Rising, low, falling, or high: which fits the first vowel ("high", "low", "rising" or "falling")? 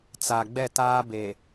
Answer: low